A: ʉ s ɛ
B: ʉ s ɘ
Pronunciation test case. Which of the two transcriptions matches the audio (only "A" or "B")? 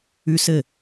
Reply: B